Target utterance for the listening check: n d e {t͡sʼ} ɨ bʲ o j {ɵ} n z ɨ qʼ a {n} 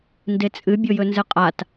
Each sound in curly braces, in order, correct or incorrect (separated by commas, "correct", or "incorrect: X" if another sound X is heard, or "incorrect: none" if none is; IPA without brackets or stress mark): correct, correct, incorrect: t